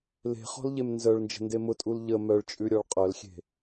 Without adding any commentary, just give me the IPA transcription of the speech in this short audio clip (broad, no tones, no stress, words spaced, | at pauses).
le̤χɔ̤lʎem nzœɭnd͡ʒə̤nde mʊtʼul ʎə mœɭt͡ʃʼʉɾʲɔɭ qʼœlxʲe̤